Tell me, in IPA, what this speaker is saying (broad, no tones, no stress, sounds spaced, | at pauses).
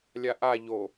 lʲ a ʔ a ʎ o